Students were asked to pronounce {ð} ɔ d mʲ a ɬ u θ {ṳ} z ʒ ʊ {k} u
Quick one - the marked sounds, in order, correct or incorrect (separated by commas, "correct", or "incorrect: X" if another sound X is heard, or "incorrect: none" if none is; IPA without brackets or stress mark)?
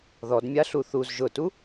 correct, incorrect: u, incorrect: t